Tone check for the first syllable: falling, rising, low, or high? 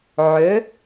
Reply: rising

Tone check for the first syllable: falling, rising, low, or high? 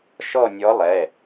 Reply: falling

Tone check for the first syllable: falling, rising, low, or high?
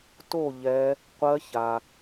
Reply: falling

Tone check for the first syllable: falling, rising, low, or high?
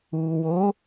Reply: low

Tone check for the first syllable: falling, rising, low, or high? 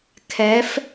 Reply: rising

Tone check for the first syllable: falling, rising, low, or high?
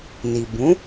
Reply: low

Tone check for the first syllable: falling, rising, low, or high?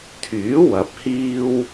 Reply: rising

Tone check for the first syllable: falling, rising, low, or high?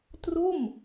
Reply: falling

